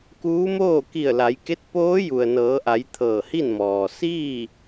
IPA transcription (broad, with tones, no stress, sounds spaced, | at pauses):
k uː˧˥ m oː˥˨ k i˧˩ ə̯ l a˩˧ j k e˧˥ t̚ p oː˧˥ j u˩ ə̯ n ɤː˩˧ ʔ a˩˧ j t̪ʰ ɤː˧˩ h i˥˨ n m ɔː˩ s iː˥˨